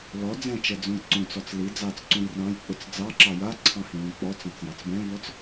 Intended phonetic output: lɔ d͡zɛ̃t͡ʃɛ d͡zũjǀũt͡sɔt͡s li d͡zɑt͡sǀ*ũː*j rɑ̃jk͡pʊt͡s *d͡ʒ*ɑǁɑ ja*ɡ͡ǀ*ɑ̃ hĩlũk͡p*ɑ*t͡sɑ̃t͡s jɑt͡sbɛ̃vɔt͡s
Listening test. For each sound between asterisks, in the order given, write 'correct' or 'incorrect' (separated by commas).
incorrect, incorrect, incorrect, incorrect